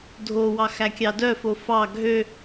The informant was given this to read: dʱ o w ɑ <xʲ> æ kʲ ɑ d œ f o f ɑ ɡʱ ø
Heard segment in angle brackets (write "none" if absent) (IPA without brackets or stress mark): x